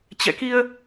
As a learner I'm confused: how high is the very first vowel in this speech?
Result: mid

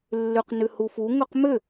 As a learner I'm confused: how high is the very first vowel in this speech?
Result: high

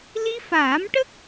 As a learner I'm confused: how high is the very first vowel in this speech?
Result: high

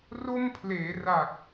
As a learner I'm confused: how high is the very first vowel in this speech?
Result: mid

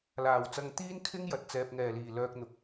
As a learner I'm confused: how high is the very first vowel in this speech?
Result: low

